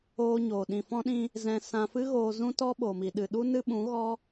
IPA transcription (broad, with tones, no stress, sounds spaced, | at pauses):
oː˧ ɲ oː˨ ɗ ĩ˨ f ɔ̃˧ ɗ ĩ˧ | z ɛ̃˧ s ã˧ f ɨ˦ ɣ oː˧ z ũ˦ t ɔ˦ ɓ o˨ m i˨ ɗ ɨ˨ ɗ u˦ n ɨ˦ ɓ ũ˨˦ ɣ ɔ˦